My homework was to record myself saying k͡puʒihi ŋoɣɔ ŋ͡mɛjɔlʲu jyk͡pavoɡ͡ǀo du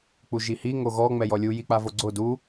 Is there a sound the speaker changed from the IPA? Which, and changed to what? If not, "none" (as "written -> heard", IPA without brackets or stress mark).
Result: y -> i